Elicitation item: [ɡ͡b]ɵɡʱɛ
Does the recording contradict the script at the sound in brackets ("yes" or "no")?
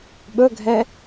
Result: yes